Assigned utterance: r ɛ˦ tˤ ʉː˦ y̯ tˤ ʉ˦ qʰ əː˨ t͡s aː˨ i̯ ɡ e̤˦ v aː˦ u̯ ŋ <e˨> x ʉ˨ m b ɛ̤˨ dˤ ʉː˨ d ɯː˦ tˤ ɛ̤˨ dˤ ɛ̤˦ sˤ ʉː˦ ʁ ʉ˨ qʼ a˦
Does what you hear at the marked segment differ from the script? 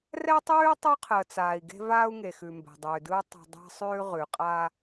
no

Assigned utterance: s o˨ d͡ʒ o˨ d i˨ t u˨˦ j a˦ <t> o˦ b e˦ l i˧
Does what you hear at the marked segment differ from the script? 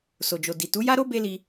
yes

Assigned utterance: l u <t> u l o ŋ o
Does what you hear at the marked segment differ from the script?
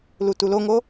no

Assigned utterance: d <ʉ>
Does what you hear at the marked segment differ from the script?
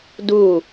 yes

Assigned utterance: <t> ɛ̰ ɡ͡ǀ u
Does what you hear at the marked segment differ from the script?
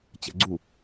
yes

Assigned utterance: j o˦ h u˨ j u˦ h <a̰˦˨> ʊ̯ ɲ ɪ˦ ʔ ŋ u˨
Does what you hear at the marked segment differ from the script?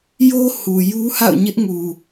no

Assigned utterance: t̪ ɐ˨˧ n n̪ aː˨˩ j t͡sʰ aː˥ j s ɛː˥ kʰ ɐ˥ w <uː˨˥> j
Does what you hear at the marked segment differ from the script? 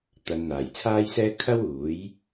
no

